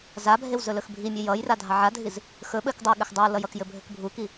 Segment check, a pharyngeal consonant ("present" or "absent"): present